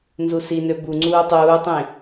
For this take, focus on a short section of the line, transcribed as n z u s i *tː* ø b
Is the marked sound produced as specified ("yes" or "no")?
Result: no